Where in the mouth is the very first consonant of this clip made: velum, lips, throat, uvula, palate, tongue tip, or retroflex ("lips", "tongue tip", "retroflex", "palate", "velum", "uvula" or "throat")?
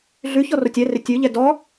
tongue tip